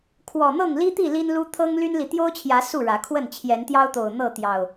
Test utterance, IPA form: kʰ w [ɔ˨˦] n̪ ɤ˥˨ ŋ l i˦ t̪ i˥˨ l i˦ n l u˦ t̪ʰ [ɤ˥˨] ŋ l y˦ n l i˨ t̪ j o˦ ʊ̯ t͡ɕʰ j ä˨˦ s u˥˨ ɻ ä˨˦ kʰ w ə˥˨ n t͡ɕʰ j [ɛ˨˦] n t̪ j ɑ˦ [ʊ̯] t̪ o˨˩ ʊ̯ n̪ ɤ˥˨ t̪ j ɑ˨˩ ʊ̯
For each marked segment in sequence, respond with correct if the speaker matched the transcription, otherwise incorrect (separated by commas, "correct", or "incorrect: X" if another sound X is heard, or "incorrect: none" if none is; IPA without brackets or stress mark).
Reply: incorrect: ɔ˨˩, incorrect: ɤ˦, correct, correct